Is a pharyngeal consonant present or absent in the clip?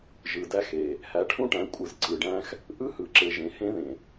absent